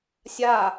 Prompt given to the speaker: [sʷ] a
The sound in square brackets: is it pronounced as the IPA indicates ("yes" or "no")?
no